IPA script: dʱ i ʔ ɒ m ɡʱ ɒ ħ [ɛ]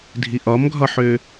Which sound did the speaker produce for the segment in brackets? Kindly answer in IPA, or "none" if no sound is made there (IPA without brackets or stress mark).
ø